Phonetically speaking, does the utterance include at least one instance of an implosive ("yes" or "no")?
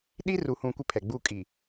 yes